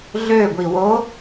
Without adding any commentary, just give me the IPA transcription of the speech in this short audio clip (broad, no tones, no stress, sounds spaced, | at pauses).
ɮ ø ɡʷ i w o